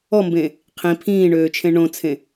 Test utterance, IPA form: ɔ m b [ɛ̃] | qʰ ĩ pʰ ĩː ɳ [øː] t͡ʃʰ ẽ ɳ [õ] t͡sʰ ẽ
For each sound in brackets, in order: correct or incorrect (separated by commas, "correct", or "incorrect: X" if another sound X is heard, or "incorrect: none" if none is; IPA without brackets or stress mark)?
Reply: incorrect: ẽ, correct, correct